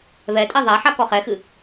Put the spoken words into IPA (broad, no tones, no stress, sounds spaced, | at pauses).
β ɛ tʼ ɛ ðˤ a ħ a k ɔ χ ɛ x ɨ